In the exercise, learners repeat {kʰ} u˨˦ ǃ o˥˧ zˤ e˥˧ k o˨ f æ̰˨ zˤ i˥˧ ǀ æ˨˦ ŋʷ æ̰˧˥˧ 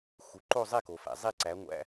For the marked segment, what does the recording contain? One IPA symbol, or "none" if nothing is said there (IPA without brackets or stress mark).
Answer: x